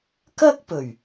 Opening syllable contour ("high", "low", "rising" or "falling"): high